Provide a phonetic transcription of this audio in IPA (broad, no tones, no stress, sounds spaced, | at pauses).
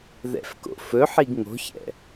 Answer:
ð ɛ̰ f k o̰ f ɵ ħ i ɡ ŋ o̤ ç ɛ̰